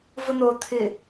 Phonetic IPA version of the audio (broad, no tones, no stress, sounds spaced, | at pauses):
v ʊ n̪ o t̪ʰ ɪ